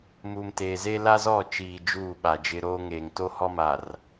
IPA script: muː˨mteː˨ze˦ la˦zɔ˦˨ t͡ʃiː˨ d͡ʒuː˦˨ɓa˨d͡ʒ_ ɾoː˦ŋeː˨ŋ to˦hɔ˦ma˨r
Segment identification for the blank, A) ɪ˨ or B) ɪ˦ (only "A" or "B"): B